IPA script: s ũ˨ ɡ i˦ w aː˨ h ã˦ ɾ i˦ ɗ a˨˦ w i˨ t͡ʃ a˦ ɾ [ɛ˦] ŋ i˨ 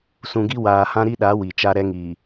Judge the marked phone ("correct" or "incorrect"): correct